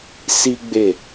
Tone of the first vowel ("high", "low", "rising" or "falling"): high